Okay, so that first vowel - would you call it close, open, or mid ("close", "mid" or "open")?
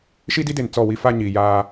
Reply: close